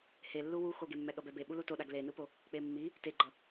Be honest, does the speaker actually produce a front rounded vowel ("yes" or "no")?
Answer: no